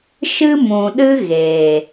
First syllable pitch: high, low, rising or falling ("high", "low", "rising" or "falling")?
high